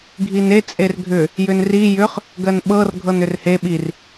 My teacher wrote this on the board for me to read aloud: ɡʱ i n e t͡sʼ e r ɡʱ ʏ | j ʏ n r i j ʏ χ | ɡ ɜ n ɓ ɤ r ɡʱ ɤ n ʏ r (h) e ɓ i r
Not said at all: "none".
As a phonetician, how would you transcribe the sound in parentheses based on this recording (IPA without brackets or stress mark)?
h